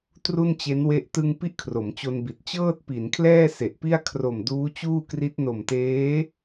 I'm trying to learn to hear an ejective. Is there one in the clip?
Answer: no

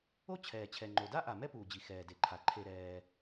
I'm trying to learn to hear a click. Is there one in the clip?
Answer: yes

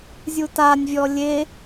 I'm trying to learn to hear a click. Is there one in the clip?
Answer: no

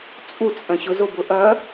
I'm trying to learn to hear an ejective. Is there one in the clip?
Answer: yes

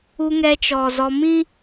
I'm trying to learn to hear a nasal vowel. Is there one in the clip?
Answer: yes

